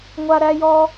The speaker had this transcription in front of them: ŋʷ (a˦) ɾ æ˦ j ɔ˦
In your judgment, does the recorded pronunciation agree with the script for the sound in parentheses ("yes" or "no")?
yes